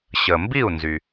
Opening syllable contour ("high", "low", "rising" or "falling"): low